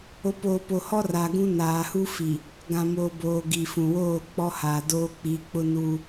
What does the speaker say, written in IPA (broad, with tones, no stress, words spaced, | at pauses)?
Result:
o˨˦poː˨po˨hɔ˦ ra˨ɡũ˦ naː˨hu˦ fi˨ | ɡã˨moː˨boː˨ ɡi˨fũ˨woː˦˨ k͡pɔ˦haː˨doː˦ k͡pi˨˦k͡pʊ˦nuː˦